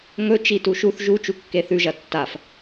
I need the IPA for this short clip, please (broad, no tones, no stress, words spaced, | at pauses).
ŋɵ t͡ʃituʃuθ ʒu t͡ʃukːeθʉʒɐ tːaf